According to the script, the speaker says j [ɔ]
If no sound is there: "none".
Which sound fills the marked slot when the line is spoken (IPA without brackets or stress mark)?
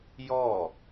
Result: ɔ